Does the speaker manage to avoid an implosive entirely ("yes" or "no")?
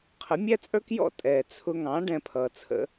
yes